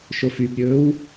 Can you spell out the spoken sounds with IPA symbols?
ʃofybɾʲɵːw

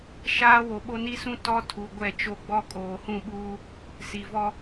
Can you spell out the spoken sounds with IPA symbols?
ʃaː˦wo˨ɓo˦ ni˦sũ˦ tɔ˦tʰu˨ ɡʷɛ˦˨t͡ʃo˦ɡ͡bɔ˦ kʼoː˨hũ˦˨ɓuː˦ | si˨vɔ˦

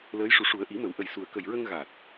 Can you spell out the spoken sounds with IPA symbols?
ləː˧˥jʂu˨˩˦ʂu˨˩˦ə̯ ʔi˨˩˦mə˨˩˦w ʔə˨˩jsu˨˩ə̯kə˨˩jɹə˧ŋ ɣa˨˩t̚

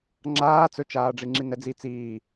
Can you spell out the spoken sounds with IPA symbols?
ŋ͡ǁaː t͡sɵt͡ʃaːɖ͡ʐi ŋ͡ǁinɛd͡zi t͡siː

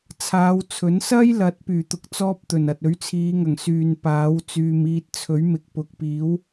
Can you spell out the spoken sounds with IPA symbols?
t͡sʰaː˨˧wt͡sʰɵ˨˥n sɐ˥jlɐ˨˥t̚ pyː˨˩t̪ʊ˧k̚t͡sɔː˥p̚ t̪ɵ˨˩nɐ˨t̚ ɵ˨˥ɥt͡sʰiː˨˧ŋɐ˨˩ŋ syː˨npaː˨˥w t͡syː˨miː˧t̚t͡sʰɵ˨˥ɥmɪ˨k̚ pʊ˨k̚piː˨˥w

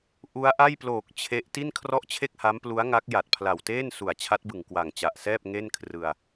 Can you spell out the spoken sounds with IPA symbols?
ʔu˦˥a̯ʔa˥˩jploː˨˩k̚ t͡ɕʰe˦˥ʔ ti˥˩nkʰrɔ˥˩ʔt͡ɕʰe˥˩k̚ha˦˥m plu˦˥a̯ŋa˦˥k̚ ja˨˩t̚pʰla˨˩wteː˥˩nsu˨˩a̯ t͡ɕʰa˦˥t̚bɯ˨˩ŋ kwa˨˩ŋt͡ɕa˨˩ʔsɛː˥˩p̚ ŋe˥˩nkʰrɯ˧a̯

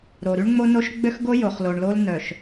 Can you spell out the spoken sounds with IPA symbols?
ɾo˨ ɾy˦ɳŋ͡mo˦no˦ʃ ɡ͡bø˦xɡo˦ jo˨χlo˨ɳlo˦l nœ˨ʃ

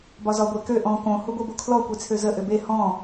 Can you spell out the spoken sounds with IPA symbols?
bɒzɒ ɡʷekø ʔɔ̃ kõ huɡʷebokʰlɔ kʷet͡sʰøzə ʔøbe hɔ̃

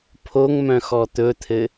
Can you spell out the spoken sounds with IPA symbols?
pʰoŋmœ̃ xɔt̪ɵt̪ʰɘ

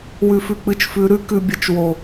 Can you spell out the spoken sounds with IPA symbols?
wʉ˨fʉ˨k͡pɨ˨t͡ʃfʉ˨˦ ɾʉ˦ kʉ˨bʲə˨˦t͡ʃ wo˨

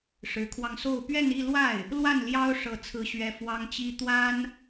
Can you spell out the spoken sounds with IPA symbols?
ʂɻ̩˧˥kʰwɑ˧ŋso˥˧ʊ̯ pɥɛ˥˧ni˥˧lwa˥˩ɪ̯ | lwa˥˩nljɑ˥ʊ̯ ʂɤ˥˩t͡sʰɹ̩˥ɕɥɛ˥ fwɑ˥ŋt͡ɕi˥ t̪wa˥n

